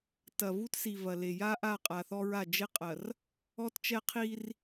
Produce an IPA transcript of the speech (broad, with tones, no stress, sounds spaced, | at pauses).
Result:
t ɐ˨ v u˦ t s i˨ v ɐ˨ l e˨ j a˦ ʔ a˦˨ qʼ a˨ θ ɔ˦ ɹ a˦˨ d͡ʒ e˦ qʼ ɐ˨ r | ɔ˦ t t͡ʃ ɛ˦ qʰ i˦ r